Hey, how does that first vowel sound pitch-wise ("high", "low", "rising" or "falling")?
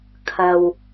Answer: low